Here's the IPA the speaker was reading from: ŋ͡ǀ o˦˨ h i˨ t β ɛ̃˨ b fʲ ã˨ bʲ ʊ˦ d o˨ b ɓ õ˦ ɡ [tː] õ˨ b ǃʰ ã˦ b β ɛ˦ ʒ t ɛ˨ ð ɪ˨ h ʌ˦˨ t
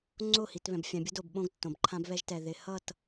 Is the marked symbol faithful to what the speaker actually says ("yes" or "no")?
yes